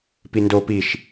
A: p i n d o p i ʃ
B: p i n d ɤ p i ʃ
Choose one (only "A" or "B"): A